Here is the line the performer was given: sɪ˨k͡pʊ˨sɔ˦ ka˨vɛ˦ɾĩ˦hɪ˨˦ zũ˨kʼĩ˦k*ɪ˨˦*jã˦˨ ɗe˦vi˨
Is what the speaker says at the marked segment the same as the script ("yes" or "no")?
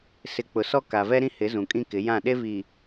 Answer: yes